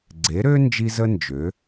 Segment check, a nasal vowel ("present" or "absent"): absent